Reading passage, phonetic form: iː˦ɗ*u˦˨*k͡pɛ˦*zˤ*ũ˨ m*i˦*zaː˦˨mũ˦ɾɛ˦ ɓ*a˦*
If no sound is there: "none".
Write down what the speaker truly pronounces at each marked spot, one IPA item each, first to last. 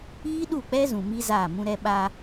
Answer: u˦˨, z, i˦, a˦

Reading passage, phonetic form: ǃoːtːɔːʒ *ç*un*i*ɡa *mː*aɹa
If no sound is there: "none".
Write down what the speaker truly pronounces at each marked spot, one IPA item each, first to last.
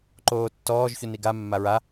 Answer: ç, i, mː

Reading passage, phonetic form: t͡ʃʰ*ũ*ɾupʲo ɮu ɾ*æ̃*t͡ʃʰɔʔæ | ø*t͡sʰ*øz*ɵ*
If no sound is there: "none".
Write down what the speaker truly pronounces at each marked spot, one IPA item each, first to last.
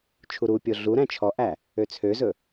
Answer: u, æ̃, t͡sʰ, ɵ

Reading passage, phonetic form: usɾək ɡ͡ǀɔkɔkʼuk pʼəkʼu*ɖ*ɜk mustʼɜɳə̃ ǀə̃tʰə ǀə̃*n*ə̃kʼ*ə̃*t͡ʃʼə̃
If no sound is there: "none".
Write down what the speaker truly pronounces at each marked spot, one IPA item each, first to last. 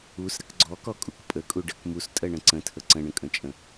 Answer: ɖ, ɳ, ə̃

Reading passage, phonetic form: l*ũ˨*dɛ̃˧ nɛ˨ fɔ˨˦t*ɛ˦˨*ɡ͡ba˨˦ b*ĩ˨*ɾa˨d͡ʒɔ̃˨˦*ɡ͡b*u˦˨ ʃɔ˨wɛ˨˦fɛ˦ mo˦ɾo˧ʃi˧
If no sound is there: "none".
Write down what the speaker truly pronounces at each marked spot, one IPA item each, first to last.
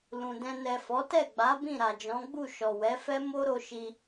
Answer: ũ˨, ɛ˦˨, ĩ˦˨, ɡ͡b

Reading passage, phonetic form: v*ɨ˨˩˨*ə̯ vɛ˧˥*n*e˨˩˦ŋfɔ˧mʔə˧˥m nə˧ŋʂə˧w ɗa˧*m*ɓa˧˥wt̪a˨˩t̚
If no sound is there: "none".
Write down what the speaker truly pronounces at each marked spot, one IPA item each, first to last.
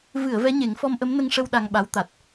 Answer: ɨ˨˩˨, ɲ, ŋ

